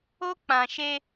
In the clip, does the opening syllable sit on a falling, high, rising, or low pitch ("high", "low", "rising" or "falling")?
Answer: high